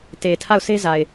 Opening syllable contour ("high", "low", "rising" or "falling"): low